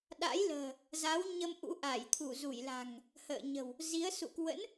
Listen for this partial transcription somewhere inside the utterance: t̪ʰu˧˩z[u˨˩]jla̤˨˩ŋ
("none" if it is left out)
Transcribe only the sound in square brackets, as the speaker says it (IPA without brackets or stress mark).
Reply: u˧˩